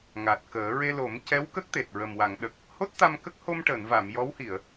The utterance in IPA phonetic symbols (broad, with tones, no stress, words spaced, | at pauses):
ŋa˨˩t̚kəː˨˩˦ ɹe˧lo˨˩˦mcɛ˧˥w kə˦˥k̚t̪e˨˩t̚ ɹə˨˩mwa˨˩˨ŋɗə˨˩k̚ | ho˦˥t̚t̪a˧mkə˦˥k̚ ho˧mʈəː˨˩˨nva˨˩˨m jɔ˧˥whi˨˩˨ə̯